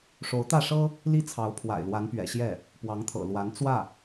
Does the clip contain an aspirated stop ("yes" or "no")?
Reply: yes